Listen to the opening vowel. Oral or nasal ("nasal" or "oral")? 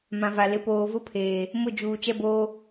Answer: nasal